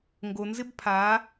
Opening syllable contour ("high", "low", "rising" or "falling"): low